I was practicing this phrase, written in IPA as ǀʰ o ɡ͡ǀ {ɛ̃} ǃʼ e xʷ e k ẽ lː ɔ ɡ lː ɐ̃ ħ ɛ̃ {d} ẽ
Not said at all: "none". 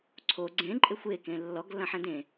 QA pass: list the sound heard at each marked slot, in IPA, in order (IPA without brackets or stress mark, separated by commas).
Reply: ẽ, d